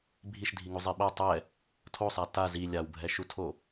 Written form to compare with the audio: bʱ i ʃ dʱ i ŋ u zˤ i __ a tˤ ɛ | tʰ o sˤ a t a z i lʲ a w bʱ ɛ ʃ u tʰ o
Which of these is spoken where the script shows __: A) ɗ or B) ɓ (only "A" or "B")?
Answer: B